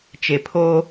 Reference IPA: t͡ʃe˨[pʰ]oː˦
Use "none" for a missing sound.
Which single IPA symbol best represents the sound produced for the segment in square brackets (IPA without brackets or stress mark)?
pʰ